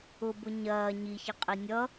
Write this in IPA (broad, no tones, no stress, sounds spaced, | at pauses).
ʊ b ʊ ɲ ɐː ɲ i ç ʌ qʼ i nʲ ʌ